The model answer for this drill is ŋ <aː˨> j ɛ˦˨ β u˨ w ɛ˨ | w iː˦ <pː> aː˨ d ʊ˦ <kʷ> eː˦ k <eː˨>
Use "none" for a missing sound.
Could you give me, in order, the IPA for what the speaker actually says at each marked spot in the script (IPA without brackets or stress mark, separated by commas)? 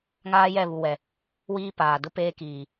aː˦, p, p, iː˨